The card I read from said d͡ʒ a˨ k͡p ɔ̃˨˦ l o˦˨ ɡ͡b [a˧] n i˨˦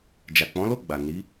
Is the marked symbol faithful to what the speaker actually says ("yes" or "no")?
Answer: no